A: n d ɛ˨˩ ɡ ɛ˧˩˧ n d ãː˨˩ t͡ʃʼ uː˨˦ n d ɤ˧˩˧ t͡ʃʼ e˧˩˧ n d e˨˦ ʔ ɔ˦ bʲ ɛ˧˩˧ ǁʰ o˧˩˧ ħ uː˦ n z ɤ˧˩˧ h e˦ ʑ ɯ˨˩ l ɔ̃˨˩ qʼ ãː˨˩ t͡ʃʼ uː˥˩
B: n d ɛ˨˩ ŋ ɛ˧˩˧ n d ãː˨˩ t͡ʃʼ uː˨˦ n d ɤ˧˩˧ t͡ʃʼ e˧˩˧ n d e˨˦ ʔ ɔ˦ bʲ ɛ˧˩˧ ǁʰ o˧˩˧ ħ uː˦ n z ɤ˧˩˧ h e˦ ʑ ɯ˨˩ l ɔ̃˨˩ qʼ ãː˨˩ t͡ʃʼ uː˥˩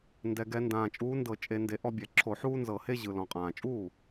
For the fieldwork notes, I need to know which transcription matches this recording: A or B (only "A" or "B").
A